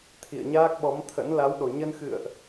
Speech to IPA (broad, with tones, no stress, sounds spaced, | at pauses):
t̪ʰ ḭ˧˨ ə̯ ɲ aː˦˥ k̚ ɓ ɔ˨˦ m t̪ʰ ə̰˧˥ n l a˨˦ w ɗ o˨˩ ɲ ə˧ n x ɨ̰˧˨ ə̯ ʔ